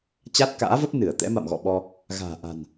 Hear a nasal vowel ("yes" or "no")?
no